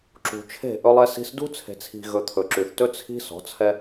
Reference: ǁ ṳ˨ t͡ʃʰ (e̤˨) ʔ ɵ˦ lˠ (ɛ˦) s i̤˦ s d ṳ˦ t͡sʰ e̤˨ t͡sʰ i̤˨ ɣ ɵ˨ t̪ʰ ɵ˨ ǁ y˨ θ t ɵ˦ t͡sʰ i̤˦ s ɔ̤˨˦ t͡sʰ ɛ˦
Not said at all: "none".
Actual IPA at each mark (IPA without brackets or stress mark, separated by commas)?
e̤˦˨, ɛ˦